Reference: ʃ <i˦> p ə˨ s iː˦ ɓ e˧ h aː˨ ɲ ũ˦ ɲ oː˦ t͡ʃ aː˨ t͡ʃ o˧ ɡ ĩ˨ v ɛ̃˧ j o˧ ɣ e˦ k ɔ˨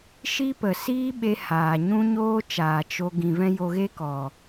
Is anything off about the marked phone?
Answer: no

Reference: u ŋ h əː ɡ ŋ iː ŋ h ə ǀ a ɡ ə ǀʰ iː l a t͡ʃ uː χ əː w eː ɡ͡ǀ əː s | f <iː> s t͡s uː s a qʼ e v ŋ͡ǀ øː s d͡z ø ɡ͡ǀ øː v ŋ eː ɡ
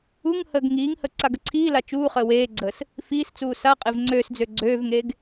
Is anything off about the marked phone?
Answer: no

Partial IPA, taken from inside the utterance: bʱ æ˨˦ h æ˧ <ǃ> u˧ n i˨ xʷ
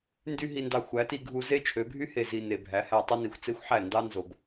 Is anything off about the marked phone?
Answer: yes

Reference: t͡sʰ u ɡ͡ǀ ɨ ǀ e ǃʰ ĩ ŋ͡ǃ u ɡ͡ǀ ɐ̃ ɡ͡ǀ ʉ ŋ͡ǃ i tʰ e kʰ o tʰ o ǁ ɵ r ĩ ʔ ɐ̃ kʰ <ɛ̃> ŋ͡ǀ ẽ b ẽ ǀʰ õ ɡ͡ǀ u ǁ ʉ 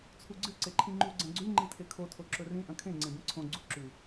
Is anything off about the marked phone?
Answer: yes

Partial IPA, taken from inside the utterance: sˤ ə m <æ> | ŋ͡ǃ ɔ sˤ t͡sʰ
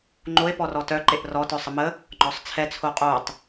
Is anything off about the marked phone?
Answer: yes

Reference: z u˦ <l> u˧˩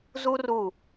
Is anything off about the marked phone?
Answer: yes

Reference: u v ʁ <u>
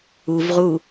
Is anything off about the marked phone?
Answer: no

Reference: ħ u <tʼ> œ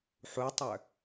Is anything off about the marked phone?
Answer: yes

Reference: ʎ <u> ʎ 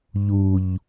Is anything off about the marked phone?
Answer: no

